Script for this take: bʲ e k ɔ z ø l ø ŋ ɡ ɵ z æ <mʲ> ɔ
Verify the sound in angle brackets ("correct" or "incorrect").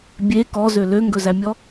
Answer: correct